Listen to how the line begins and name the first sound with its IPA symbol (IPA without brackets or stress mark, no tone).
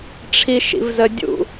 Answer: ʈ͡ʂʰ